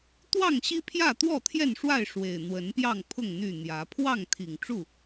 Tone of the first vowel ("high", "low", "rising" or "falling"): falling